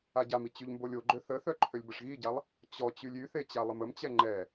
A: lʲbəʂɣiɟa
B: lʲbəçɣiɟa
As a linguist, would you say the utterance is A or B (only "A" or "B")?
A